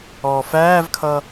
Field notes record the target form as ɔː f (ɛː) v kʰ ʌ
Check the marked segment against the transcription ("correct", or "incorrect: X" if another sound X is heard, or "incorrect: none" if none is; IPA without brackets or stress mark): incorrect: æː